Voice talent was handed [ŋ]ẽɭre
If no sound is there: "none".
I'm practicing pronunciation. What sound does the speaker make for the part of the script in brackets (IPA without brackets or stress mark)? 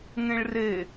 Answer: ŋ